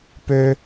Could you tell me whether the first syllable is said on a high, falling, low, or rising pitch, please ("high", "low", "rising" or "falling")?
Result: high